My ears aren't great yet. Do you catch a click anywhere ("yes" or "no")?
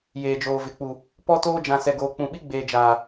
no